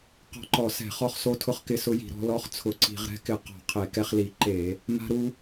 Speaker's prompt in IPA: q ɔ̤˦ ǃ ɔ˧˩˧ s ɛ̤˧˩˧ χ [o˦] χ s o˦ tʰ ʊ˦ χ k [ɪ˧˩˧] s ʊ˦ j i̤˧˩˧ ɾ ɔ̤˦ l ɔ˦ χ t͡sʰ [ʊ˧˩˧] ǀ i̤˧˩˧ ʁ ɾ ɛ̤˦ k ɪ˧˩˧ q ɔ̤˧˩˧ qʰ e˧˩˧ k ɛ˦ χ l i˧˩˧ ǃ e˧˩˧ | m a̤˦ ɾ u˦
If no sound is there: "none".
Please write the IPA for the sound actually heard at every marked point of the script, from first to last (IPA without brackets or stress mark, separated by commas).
ɔ˦, ɪ˦, ʊ˧˩˧